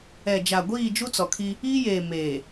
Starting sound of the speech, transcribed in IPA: ɛ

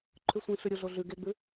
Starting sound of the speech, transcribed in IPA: ǃʰ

